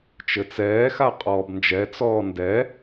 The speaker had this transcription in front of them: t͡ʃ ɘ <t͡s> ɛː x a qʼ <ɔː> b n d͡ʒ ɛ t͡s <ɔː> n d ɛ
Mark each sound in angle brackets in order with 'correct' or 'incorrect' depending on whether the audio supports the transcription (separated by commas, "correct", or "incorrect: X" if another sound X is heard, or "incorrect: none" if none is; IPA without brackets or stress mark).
correct, correct, correct